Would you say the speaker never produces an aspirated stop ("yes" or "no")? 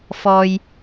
yes